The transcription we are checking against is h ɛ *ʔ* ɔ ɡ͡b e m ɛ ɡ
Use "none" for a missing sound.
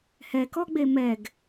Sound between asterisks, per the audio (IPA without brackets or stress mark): k